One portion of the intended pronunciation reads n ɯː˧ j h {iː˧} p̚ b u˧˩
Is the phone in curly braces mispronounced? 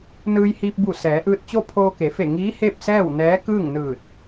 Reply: no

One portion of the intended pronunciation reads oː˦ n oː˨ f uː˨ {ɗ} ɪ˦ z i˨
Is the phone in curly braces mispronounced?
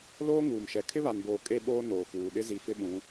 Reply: no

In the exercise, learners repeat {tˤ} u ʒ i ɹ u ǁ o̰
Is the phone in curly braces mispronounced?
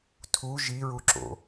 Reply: yes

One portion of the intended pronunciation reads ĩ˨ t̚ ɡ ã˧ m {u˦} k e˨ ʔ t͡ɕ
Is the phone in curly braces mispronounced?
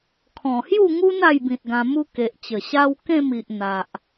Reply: no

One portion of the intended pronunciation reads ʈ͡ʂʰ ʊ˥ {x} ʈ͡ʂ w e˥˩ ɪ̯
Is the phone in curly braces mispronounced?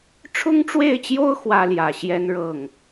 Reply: yes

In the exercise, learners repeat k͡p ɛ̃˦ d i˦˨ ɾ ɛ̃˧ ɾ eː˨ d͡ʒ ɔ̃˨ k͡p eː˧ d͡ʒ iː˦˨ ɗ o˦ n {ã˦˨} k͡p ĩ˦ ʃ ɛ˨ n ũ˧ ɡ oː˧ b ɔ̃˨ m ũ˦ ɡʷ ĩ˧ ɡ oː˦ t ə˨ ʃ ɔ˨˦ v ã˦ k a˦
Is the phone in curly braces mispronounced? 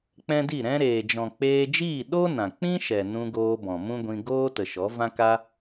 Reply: yes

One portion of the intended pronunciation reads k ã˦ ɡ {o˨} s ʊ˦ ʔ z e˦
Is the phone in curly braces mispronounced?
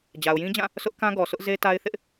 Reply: yes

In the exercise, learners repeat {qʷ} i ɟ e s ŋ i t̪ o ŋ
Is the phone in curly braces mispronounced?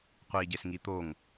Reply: no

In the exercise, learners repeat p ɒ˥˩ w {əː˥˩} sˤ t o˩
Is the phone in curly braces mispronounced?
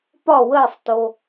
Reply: no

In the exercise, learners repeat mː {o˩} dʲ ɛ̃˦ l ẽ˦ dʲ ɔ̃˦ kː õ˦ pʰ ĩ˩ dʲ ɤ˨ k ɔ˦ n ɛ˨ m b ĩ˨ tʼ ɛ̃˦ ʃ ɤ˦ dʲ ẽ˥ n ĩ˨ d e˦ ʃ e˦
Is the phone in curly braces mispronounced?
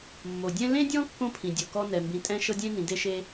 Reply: no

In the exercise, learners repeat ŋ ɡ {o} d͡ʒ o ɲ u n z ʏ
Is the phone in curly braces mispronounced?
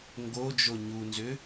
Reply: no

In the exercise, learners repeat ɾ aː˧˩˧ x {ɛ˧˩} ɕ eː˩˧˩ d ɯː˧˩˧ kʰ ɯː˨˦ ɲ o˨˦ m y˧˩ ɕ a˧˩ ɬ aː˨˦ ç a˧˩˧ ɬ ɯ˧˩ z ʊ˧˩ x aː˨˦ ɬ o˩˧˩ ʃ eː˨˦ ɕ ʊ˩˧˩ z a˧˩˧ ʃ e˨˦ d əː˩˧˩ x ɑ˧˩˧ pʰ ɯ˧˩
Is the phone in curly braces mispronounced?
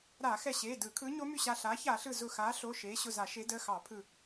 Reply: no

